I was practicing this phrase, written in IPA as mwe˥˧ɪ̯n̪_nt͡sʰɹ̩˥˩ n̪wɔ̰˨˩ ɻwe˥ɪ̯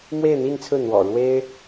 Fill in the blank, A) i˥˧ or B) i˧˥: A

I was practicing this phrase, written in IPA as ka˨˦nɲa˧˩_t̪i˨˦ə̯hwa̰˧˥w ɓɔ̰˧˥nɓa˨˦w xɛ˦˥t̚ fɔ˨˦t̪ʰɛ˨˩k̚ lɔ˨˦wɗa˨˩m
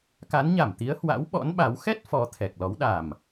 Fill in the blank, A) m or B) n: A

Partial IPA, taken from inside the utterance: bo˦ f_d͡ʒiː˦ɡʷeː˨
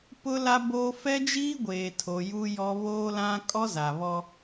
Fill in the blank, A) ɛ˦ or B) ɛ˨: A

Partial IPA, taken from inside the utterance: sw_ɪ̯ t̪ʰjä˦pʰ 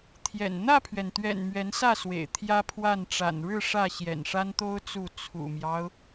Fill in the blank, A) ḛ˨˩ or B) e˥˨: A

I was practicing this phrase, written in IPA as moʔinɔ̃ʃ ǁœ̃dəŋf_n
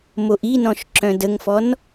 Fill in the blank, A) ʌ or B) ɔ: B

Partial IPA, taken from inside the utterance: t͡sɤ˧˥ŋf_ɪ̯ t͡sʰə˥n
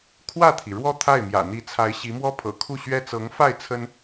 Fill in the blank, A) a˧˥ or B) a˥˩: B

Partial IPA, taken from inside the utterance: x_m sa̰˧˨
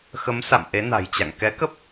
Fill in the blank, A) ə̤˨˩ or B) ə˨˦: B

